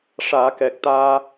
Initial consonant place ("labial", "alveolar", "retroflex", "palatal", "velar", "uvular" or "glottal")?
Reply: retroflex